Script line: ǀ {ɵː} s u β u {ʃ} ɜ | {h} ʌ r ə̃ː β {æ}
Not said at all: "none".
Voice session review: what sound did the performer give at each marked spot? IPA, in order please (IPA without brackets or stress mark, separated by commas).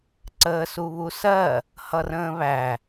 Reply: əː, s, h, æ